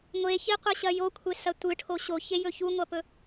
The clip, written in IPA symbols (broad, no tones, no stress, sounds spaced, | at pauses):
ŋʷ e ç i qʷ ɐ ɕ ɐ j o kʷʰ e s ɐ tʷ ɨ ʈʰ o ɕ o ç e j ɵ ç u ŋʷ ɐ p ɵ